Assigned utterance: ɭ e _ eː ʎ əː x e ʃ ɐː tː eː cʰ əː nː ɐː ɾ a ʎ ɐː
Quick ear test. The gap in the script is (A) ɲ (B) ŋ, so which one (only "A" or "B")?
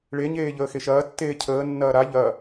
A